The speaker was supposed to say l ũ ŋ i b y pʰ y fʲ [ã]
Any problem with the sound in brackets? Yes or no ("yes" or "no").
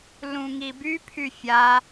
yes